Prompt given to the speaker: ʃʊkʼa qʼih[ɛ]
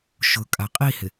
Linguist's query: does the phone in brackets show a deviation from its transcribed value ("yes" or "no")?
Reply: yes